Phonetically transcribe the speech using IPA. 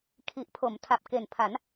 kʰ i˨˩ ʔ pʰ o˩˦ m tʰ a˨˩ p̚ k e˨˩ n pʰ a˩˦ n

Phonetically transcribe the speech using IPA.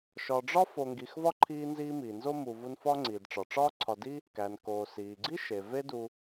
ʃ ɒ˨ ɖ͡ʐ ɒ˥ f o˨ ŋ ɡ i˨ x v ɒ˥ ǃʰ iː˦ n z iː˦ m iː˩ n z o˥ m u˨ v u˦ n f ɒ˥ ŋ͡ǀ iː˩ d ʈ͡ʂ ɒ˩ ʈ͡ʂ ɒː˥ ǀʰ ɒ˨ d i˥ | k æ˩ n k oː˩ s iː˩ ɡ͡ǀ i˥ ʃ e˩ v e˦ d u˨

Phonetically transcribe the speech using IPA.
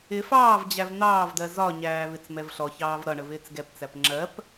ɪ f ɑː v d͡ʑ æ v n̪ ɑː v d ɜ z ɒ ɲ æː v ɪ t͡s m ɛ v ɬ ɔ ç ɑː v ɾ ʌ ɳ ə v ɪː t͡s ɡ ɛ p t͡s æ p ŋ͡ǁ ɜ p

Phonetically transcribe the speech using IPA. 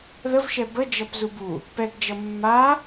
ð ə v ʃ ɛ b ə d͡ʒ ʌ p z u b u | p ɛ ɡ d͡ʒ ʌ mː a

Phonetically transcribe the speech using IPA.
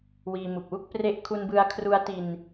w iː˧ m u˨˩ k̚ w u˥˩ k̚ p r e˦˥ ʔ kʰ u˧ n b ɯ˧ a̯ kʰ r u˦˥ a̯ t i˧ n

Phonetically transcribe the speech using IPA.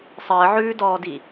sˤ əː ʕ ʉː d ɔː d i

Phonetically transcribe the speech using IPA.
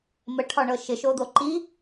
m ə ʈʰ ɒ ɳ ɤ ʃ ɪ ʃ o d̪ o ǃ i

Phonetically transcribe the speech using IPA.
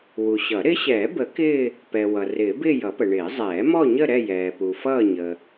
w u˨ ɕ ʌ˨˩˦ ɾ ɪ˧˥ ɕ ɛː˨˩˦ b ə˨˩˦ k ɪː˥˧ | p ɛ˨ w ʌ˨ r ɪː˨˩˦ b ɪː˥˧ j ʌ˨˩˦ p ə˨ ɳ ɪː˨˩˦ zˤ ɛː˨˩˦ m ɔ˥˧ ɲ ə˥˧ ɾ ɛ˥˧ j ɛː˨ p u˨ f ʌː˥˧ ɲ ə˨

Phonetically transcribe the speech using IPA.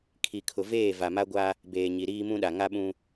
kʰ i˨ kʰ ʊ˨ v eː˦˨ v a˨ m a˦ ɡʷ a˦ | b eː˨ ɲ i˨ ɾ iː˦ m ũ˦ ɗ a˨ ŋ a˦ ɓ ũ˦

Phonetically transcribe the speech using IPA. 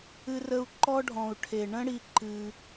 ɨ˦ r ə˦ u̯ ǃ ɔ˦ ɖʱ ɔ̃˨ u̯ ʈʰ e˨ ɳ ə̃˦ ɽ i˧ ǃ ɨ˧

